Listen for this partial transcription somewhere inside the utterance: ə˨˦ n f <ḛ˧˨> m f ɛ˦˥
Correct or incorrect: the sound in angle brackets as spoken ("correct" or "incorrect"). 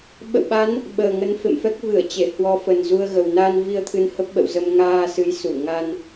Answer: correct